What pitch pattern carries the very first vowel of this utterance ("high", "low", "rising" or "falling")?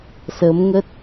rising